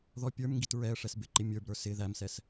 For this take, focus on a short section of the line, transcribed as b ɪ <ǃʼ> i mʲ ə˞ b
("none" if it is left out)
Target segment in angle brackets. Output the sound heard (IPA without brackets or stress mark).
ǃ